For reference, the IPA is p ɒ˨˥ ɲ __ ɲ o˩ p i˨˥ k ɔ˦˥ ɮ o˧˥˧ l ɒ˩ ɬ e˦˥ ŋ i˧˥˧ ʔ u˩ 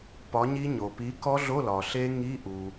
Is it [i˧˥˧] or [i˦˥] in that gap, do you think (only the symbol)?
i˦˥